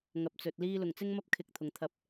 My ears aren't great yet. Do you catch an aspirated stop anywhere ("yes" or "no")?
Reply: yes